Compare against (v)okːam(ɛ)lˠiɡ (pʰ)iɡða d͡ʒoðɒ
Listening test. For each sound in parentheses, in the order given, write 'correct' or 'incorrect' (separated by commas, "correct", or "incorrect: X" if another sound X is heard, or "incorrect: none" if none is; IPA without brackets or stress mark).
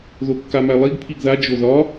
incorrect: ð, incorrect: æ, correct